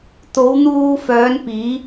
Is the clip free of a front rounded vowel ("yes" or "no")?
no